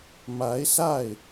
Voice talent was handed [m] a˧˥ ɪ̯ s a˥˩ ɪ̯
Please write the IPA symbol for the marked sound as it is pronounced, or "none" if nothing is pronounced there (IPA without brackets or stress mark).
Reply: m